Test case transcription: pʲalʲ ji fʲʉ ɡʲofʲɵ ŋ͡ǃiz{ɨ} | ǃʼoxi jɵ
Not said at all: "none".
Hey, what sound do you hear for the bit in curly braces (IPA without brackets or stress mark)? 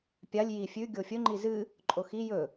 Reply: ɨ